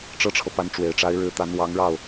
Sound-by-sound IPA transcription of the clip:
ʈ͡ʂɤ˥ʈ͡ʂʰɤ˨ pa˧˥nʈ͡ʂwe˨˩ɪ̯ʈ͡ʂa˧˥ɪ̯ ɻɻ̩˧˥t̪a˧˥n wɑ˧˥ŋɻɑ˥˩ʊ̯

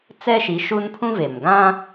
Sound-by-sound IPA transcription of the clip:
t͡sɛ˦ʃi˨˦ ʃu˦npʰũ˦ve˨mɡã˦

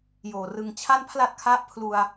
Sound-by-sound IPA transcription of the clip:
joː˨˩ rɯ˨˩ŋt͡ɕʰa˥˩npʰla˥˩t̚kʰa˥˩ʔ pʰlu˧a̯

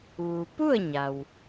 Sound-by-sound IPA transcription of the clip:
ʋu˩ pu˥˨ə̯ɲa˩w

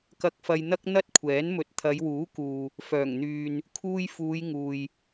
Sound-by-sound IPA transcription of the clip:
kɐ˧k̚fɐ˧jn̪ɐ˥k̚ n̪ɐ˥t̚kʷʰɛː˨˥n mɵ˨t̚t̪ʰɐ˨˧jwuː˨˥kuː˨ | fœː˨˩ŋn̪yː˨n | kʰuː˧j fuː˨˧jŋuː˨j

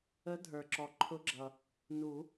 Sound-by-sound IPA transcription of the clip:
ə˨˦dʱə˞˩ ǁɔ˩ǃʰʊ˨˦ɡ͡ǁʌ˩ | nu˨˩˦

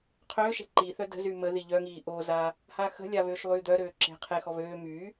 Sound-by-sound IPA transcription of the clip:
qʰøːʃɛ̤ ǃiθœ də̤z yməði ʎœŋiː ʔoza | haxə̤lʲa βøːʃlˠyːd̪œɾøː ǁe̤qʰexɔ βøː my

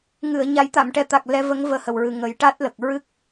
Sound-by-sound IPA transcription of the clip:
ŋɨ˨˩˨ə̯ ɲa˨˩˦jt̪a˨˩˨mʈɛ˨˩t̪a˨˩k̚ lɛ˧˥və˧˥ŋ vəː˧hə˨˩wɹɨ˨˩ ŋə˨˩˦jʈa˦˥t̚lə˨˩k̚ ɹɨ˦˥k̚

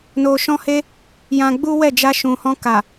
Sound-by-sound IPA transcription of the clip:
no˧ʃɔ̃˦he˦ | jã˧ɡ͡bu˦wɛ˦˨ d͡ʒa˧ʃũ˨hɔ̃˧ ka˨

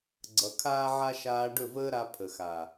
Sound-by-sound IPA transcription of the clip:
ɡ͡ǀʌ˨kʰaː˦ʕa˦ ʃaː˧ɖɵ˦˨vəː˦ɾa˧ pʰə˨xa˨

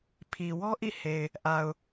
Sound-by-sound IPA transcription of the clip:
pʰi˨wɔ˦ʔḭ˦˨ he˨ɪ̯ | ʔa˨ʊ̯

